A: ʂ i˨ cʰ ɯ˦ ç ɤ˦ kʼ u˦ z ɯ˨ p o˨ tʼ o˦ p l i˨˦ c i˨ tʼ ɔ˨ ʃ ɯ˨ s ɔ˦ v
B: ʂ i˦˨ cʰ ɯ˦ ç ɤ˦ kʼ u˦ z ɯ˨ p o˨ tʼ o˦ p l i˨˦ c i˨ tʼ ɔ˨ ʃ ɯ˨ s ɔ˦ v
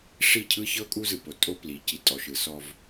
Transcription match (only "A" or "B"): B